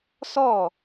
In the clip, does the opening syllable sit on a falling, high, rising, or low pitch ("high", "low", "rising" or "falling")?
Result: falling